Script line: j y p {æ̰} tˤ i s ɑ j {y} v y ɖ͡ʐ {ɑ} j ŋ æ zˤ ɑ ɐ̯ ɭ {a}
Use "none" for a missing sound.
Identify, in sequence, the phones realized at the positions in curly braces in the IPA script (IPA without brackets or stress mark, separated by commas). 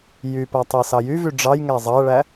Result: æ, y, ɑ, æ